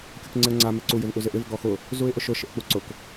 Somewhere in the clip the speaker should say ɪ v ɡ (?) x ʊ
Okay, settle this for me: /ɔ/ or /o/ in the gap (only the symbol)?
ɔ